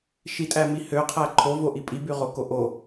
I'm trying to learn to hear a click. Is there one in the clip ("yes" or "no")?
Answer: yes